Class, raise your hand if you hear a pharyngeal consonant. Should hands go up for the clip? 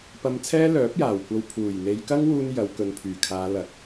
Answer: no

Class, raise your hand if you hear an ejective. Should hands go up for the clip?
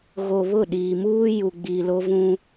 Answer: no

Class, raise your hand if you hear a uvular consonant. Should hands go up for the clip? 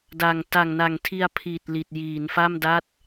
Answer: no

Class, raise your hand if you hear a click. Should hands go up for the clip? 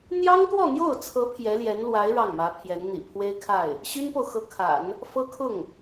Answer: no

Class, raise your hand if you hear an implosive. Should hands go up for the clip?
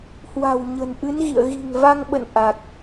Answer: yes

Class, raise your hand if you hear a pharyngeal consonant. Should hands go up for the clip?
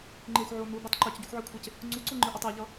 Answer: yes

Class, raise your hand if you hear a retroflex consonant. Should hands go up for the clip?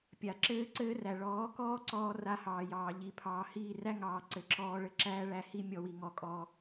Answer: yes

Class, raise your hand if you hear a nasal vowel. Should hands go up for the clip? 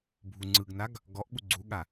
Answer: no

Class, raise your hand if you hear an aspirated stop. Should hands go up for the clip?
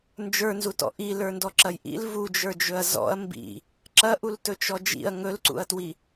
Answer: no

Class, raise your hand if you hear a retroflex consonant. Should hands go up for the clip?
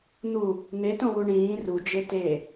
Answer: yes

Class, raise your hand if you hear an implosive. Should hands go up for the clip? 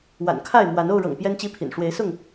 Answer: no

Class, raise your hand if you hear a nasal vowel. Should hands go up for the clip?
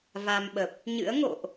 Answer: no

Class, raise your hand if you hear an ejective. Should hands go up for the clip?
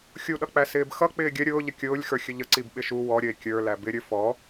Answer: no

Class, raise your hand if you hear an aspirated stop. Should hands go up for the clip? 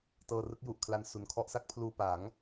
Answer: yes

